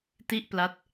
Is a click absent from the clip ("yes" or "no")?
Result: yes